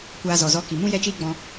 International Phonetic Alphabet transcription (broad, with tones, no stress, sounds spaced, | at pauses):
kʷ aː˧ z ɔ˨ z ɔ˧ k i˨ m ũ˦ j ɛ˦ t͡ʃ iː˦ ɡ͡b ɔ̃˧